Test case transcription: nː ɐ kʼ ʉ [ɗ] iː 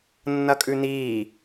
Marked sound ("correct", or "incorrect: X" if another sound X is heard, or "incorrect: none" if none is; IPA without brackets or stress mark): incorrect: n